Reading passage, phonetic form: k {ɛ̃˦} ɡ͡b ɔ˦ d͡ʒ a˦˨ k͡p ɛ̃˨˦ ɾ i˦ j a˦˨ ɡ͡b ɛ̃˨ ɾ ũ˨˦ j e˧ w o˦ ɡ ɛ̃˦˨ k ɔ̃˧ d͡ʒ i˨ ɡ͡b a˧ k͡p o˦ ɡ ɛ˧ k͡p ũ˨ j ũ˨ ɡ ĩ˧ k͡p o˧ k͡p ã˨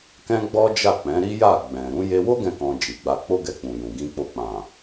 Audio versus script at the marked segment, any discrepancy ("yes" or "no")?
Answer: no